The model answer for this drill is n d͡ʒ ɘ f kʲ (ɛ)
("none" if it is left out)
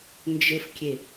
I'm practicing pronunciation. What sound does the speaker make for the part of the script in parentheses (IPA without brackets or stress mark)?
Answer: e